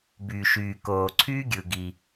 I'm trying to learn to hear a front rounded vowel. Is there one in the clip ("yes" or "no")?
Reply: yes